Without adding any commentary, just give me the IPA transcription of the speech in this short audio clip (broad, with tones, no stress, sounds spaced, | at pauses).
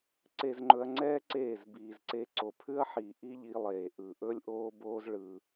ǀ e˧ z ŋ͡ǃ ɵ˧ ɐ̯ ŋ͡ǀ ɛː˦ ǀ eː˦˨ z b iː˨ z ǀ e˧ ǀ o˨ pʰ ʉ˦ ɐ̯ ħ iː˨ ʔ i˦ ʎ i˧ lˠ eː˨ ʔ ɯ˨ ʔ ɵ˦ lʲ ʔ oː˦ b oː˦ z ɭ ɯ˧